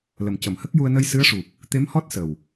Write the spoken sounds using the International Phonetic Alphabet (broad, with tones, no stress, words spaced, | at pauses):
lə˨˩mcə˨˩˨mhə˦˥k̚ju˧ə̯ nə˧jsɨ˧˥ə̯ʂu˨˩p̚ | t̪e˧˥mhɔ˦˥t̚ sə˨˩w